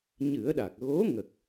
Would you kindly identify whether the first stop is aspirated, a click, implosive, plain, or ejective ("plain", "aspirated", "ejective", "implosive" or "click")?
implosive